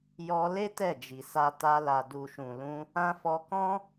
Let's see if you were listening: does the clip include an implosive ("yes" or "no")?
no